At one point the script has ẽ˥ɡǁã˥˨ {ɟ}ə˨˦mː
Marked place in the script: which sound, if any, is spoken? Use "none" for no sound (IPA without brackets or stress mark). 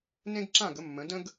ɡ